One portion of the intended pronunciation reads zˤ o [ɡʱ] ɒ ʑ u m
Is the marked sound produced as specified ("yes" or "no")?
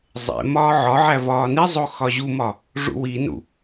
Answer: no